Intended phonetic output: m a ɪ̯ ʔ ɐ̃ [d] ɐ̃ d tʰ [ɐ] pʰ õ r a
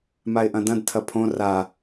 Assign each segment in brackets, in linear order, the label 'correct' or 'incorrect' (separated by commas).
correct, correct